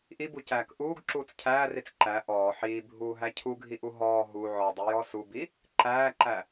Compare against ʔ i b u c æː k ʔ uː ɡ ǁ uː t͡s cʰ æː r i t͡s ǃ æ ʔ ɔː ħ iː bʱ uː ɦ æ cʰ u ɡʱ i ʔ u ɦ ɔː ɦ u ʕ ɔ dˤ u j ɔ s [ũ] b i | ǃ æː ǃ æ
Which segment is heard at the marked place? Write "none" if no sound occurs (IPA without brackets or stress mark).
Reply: u